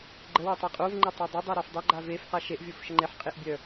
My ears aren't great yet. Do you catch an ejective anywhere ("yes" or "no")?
yes